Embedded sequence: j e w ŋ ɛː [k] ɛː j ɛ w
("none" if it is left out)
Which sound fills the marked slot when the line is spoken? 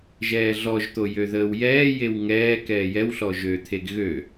k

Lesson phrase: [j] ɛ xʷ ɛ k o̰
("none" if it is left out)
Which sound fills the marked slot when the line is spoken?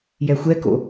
j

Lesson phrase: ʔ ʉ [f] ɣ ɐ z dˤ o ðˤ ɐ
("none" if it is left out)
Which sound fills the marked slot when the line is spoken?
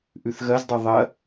θ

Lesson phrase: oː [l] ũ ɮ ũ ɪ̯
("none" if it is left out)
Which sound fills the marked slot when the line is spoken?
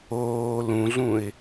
l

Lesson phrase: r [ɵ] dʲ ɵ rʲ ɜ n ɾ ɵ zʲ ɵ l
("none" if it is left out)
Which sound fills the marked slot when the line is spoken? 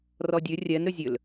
ɔ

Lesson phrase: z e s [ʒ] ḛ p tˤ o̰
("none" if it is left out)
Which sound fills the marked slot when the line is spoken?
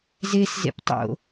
z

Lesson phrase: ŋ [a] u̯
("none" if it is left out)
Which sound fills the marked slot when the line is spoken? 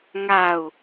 a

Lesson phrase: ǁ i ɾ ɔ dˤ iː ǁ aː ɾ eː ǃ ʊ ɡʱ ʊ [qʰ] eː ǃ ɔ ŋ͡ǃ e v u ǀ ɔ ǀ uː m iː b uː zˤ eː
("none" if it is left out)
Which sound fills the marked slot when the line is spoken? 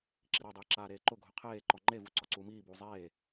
qʰ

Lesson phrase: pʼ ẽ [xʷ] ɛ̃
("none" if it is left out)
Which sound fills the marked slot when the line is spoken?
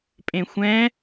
xʷ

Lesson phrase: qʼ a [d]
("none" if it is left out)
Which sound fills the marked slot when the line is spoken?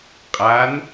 n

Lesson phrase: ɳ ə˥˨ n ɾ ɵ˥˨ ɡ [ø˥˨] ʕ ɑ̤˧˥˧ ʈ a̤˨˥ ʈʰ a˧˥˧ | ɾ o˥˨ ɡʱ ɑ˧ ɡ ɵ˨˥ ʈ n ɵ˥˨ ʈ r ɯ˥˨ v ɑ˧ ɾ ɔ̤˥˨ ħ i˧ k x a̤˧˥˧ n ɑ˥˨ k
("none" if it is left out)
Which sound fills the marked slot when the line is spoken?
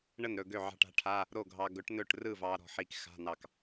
ø˥˨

